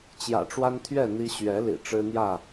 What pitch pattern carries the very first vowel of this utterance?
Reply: low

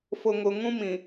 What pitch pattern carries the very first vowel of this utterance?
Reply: low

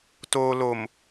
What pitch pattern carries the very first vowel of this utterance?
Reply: low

